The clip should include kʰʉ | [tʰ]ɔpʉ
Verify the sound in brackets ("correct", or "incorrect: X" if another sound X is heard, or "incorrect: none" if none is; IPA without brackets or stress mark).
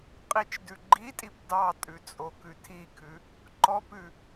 incorrect: ǃ